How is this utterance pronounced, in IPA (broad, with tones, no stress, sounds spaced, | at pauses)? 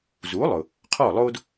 z u˩˥ lˠ ʊ˩ | qʰ ɔ˥˩ lˠ o˥ d